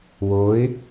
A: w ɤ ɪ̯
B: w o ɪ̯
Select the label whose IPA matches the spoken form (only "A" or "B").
B